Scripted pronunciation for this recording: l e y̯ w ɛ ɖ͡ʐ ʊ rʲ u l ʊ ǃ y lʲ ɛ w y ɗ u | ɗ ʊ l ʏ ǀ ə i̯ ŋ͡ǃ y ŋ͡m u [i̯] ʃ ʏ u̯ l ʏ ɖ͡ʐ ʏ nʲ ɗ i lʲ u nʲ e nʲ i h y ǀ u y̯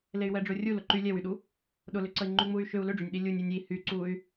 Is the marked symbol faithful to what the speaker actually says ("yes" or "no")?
no